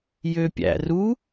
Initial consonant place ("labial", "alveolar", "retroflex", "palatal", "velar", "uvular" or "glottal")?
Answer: palatal